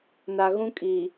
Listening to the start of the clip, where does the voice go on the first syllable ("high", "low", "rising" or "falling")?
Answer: low